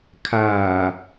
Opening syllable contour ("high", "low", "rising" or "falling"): low